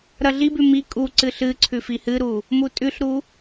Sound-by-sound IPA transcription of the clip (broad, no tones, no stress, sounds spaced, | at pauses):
ɾ ɐ ɮ i b ʉ m i kʼ u ǀ ɨ ɬ ɨ ǀʰ ʉ f i h ɨ ɾ u | m u tʼ ʉ ɬ ɾ u